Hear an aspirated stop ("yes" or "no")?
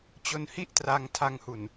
yes